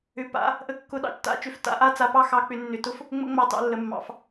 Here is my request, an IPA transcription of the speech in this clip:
ʏ˧˥pa̰˧˥ | ʔə˧˥kːʊ˧˥ ɗɑ̰˧˥t͡ʃta̰˧˥t͡ʃʏ˧˥f ta̰˧˥ʔa˥ t͡sa˧˥pɑ˥xɑ˧˥k͡pʏ˧˥ nːʏ˧˥tʊ˥f | ŋ͡mə̰˥ ŋ͡mɑ˥tɑ̰˥lːə˧˥mːɑ̰˧˥f

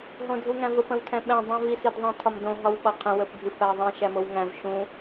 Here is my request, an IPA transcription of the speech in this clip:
ɦõdʱuŋæ̃vəp ə̃wtʰɛ̃ɓɛ̃ dˤũvi sidðˤĩtʰɒmdõ ɦɒwɓɒqʰə̃ wəpdʱɨp æðˤĩʃ æmowŋæ̃v ʃũ

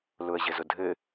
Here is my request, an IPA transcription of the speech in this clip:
lʊə̯ʑɘzʊdʱɘ

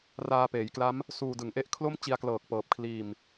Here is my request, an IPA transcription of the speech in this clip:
raː˧peː˩˦jkla˦˥m | suː˧dɯ˩˦ŋʔe˥˩ʔ kʰlo˥˩m t͡ɕi˧a̯klɤː˨˩k̚pɤː˨˩p̚ kʰliː˨˩m

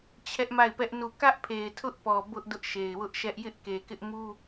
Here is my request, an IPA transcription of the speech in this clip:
t͡ɕʰɛ˦ʔma˦˨ɪ̯pɛ˦ʔ nu˦˨ kä˦ʔpʰe˨ɪ̯ tʰʊ˦ʔpɔ˨ bʊ˦ʔ dʊ˦ʔʃe˨ɪ̯wʊ˦ʔʃɛ˦ʔ jɪ˦ʔke˨kɪ˦ʔmu˦

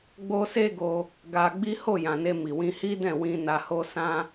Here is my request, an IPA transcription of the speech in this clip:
ɡ͡bo˦ se˦ɡo˧ | ɡa˧ɡ͡bi˦ ho˦˨jã˨ ne˧ mi˨wĩ˧ hi˦dɛ̃˦˨wĩ˧ na˧ho˦ sã˦

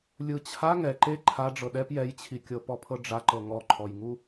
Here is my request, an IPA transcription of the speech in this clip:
lʲɯt͡ɕʰa ŋɛ ǃe ǃʰa ɖ͡ʐɤɗɛp jɛjt͡ɕʰikʲɤpɔ pʰɤɖ͡ʐaǃɤ ŋɔǃʰɔjŋu

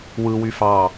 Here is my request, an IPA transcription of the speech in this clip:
wɯwy fɑ

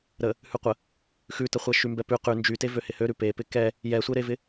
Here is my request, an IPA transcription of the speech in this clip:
ɾə | hʉqʷə | xʉtəχʷɛ ʃymbɛpʉ qʉ nd͡ʒyte vøhɪhøɾʉ pepɪ kɛ | jɛsʷeɾevɪ

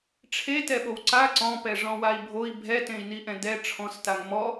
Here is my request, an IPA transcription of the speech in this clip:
ʈ͡ʂʰetɛɓow ǀa ǀɔ̃ pɛʐɔ̃wai̯bʱoi̯ bʱɛtẽi̯niʔɛ̃ dɛ ʈ͡ʂʰɔ̃staŋ mɔ

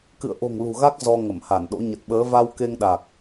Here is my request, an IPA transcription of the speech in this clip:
kɨ̰˧˨ə̯ʔo̤˨˩ŋ lṳ˨˩ɣa˦˥k̚ zɔ˧ ŋə˧˩mha˧˩nɗo̰˧˥ ɲə˨˩t̚ɓəː˨˦ va˧wke˧ŋɗa˨˩k̚

